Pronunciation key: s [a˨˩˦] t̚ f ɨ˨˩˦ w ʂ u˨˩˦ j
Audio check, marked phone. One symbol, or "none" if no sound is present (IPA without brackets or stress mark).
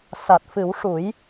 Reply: a˨˩